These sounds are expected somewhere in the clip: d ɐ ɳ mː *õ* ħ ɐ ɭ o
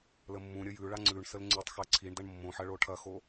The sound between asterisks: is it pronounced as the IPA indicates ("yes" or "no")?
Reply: yes